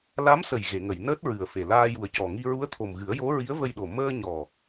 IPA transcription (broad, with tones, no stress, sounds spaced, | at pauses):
l a˧˥ m s ə˨˩ j ɣ e˨˩˨ ŋ ə˨˩˨ j n əː˦˥ t̚ ɹ ɨ˨˩ ə̯ f e˨˩ l aː˧ j u˨˩ ə̯ c ɔ˨˩ ŋ i˧ ɹ u˧˥ ə̯ t̪ʰ o˨˩ m ɣ ɨ˨˩˦ ə̯ j o˧˥ ɹ i˧˥ ə̯ v ə˧ j ɗ o˨˩ m əː˧ ɲ ɔ˨˩